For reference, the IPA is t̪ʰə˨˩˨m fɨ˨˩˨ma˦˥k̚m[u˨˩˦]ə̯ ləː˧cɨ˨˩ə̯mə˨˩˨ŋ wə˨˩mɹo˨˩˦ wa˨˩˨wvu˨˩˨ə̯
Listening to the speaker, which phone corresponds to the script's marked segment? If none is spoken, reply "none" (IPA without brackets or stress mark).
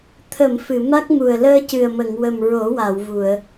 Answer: u˨˩